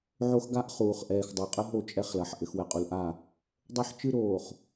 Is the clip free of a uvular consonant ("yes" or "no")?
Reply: no